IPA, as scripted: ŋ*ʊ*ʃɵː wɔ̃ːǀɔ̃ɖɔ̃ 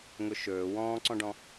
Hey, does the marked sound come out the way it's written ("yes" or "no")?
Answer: yes